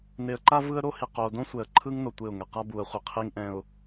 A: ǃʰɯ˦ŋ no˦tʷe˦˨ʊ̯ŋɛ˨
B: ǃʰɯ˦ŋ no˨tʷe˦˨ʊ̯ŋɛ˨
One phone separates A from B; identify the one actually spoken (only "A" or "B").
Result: B